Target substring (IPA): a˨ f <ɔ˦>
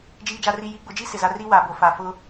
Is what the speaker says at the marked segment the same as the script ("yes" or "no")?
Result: no